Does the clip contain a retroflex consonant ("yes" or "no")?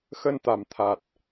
no